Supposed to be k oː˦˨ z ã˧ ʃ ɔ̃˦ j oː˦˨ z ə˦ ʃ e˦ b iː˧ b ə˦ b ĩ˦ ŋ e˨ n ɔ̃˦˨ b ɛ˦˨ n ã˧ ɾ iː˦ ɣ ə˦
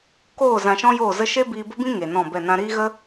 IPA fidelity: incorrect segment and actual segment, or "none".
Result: none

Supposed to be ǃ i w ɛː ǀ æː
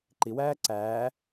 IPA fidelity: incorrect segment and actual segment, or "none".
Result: ɛː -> æː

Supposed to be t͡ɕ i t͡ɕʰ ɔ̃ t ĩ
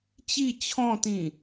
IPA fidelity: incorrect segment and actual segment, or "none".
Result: none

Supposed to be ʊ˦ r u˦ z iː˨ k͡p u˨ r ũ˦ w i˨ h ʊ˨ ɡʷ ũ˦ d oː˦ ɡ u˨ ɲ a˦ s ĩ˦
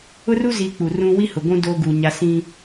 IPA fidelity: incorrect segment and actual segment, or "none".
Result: i˨ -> i˦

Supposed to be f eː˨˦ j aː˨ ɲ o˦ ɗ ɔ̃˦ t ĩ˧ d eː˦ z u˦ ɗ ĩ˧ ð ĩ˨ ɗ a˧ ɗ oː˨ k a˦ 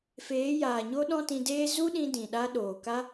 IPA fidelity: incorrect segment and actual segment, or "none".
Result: ð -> d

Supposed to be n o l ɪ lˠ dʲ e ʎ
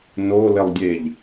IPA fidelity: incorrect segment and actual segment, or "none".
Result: none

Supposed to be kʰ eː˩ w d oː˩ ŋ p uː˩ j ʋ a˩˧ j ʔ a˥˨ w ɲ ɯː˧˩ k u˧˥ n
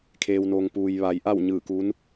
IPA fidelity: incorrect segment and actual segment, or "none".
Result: d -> n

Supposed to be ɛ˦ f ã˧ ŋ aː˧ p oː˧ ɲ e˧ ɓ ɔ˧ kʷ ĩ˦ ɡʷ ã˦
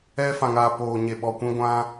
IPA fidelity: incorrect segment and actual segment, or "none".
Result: none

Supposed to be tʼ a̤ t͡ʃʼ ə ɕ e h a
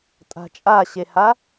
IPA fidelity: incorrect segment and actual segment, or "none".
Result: ə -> a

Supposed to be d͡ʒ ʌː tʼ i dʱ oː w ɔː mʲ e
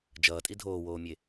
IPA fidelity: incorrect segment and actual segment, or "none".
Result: ɔː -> oː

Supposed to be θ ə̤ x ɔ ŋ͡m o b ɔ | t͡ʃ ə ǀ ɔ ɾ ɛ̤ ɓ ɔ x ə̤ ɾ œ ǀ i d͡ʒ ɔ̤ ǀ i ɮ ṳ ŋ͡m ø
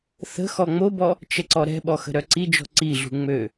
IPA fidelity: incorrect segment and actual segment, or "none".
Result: none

